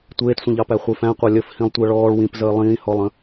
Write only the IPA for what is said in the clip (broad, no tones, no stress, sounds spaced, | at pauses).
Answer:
tʷ eː t sʷ ə̃ ʎ ɑ p æ χʷ e f æ̃ qʷ ɑ lʲ ə f h ĩ lˠ tʷ ɜ ɭ ɔː ɭ w ĩ p z əː lˠ ĩː h ɔ lˠ ə̃